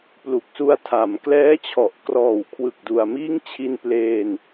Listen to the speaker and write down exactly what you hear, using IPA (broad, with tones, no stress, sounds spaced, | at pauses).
p l u˨˩ k̚ s u˧ a̯ tʰ a˩˦ m k l ɛː˦˥ t͡ɕʰ ɔ˨˩ ʔ k r ɔː˨˩ w kʰ w ɯ˨˩ k̚ d u˨˩ a̯ m iː˦˥ ŋ t͡ɕʰ i˧ n p l eː˧ n